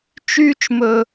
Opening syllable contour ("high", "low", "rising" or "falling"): high